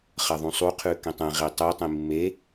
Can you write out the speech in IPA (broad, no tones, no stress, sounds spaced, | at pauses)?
χ ɐ ðˤ ũ sˤ u qʰ ʉ k ẽ tˤ ẽ ʁ i tˤ ɨ tˤ ĩ mː e